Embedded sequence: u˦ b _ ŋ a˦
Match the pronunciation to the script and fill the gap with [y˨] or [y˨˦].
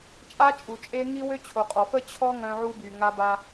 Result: y˨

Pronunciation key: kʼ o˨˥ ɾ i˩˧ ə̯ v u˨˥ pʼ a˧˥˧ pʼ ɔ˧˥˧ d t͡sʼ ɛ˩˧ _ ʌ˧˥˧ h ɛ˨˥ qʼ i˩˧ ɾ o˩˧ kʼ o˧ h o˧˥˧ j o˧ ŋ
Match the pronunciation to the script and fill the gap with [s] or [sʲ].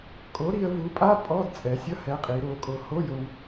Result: sʲ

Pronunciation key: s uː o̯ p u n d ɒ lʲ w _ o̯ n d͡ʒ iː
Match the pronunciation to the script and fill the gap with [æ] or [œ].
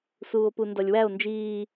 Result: æ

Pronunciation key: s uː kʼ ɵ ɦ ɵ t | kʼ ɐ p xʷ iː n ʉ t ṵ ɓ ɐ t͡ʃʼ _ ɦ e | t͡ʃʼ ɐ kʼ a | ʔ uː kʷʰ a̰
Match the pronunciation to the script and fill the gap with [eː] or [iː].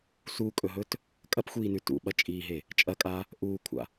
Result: iː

